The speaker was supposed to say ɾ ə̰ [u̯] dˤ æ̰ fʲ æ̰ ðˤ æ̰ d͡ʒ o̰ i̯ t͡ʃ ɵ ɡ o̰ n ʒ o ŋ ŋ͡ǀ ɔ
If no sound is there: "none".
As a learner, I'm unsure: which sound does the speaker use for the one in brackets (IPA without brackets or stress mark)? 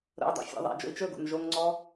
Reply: u̯